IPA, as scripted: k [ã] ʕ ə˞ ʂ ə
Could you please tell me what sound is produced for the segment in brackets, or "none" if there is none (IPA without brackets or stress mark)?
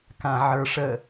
ã